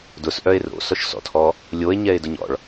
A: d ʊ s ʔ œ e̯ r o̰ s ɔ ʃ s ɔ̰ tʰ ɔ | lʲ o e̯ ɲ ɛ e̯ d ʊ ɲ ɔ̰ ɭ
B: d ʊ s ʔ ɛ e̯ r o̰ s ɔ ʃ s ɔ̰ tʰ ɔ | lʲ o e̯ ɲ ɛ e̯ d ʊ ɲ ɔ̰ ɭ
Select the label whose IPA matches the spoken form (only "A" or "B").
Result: A